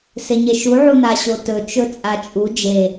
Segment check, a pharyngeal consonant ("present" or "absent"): present